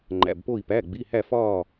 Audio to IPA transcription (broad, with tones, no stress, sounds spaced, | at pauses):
ŋ͡ǃ æ̰˩˧˩ b p o˧˩ i̯ p æ˩˧˩ ɡ͡b i˩˧˩ h æ˧˩ f ɒː˧˩